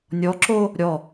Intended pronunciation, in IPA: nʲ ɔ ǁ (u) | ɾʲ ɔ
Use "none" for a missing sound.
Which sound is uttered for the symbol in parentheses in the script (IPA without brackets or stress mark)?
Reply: o